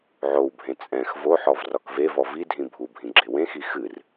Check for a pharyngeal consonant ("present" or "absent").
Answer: present